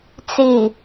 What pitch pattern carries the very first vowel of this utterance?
low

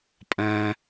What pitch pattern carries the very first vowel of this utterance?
high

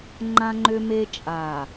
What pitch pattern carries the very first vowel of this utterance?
high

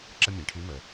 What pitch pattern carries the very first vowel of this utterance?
high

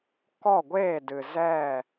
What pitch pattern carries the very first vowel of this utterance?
falling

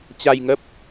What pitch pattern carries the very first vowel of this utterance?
low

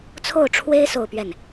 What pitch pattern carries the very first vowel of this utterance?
falling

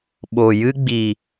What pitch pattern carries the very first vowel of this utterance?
low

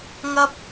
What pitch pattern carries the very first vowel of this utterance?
high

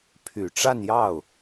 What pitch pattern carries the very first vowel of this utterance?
low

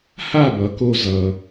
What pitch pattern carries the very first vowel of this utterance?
falling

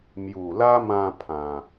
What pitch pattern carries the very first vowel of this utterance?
low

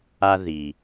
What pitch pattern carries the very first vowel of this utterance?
high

